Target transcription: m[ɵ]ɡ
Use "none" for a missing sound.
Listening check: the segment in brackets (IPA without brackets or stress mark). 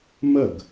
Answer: ə